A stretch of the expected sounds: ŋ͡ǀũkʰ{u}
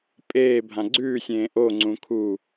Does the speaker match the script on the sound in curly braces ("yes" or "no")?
yes